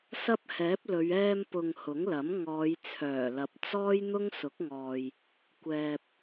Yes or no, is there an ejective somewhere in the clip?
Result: no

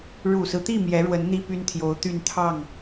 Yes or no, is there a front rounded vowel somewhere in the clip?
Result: yes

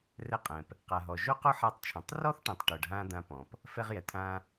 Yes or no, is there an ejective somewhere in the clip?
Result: yes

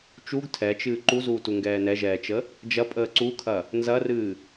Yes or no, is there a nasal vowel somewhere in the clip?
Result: no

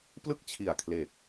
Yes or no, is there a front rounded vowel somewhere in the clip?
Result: no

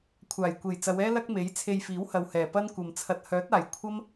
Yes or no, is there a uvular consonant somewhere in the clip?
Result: no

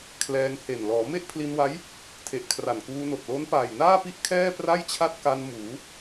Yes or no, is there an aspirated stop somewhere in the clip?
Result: yes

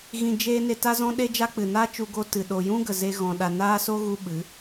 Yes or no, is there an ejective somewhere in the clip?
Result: no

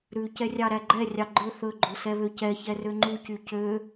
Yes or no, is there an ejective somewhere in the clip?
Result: no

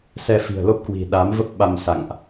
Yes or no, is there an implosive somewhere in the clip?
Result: yes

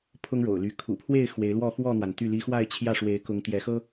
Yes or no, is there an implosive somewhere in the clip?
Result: no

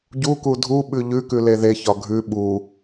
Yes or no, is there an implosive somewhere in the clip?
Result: yes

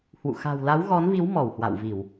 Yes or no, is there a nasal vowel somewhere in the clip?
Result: no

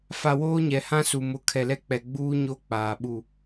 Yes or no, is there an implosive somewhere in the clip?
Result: yes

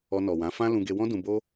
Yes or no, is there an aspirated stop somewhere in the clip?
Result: no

